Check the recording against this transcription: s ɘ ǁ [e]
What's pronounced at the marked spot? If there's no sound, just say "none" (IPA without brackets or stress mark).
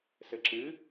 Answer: ɨ